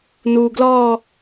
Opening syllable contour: low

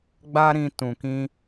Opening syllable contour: high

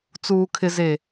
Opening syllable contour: low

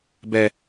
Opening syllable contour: high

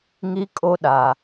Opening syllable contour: high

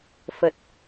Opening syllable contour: low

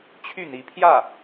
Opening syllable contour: falling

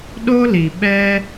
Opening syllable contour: high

